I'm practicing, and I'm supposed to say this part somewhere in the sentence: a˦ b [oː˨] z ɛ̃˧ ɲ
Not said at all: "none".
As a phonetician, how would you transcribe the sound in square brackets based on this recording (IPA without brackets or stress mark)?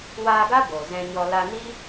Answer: o˨